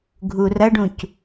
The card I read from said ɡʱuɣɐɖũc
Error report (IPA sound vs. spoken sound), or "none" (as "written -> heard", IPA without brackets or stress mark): ɣ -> r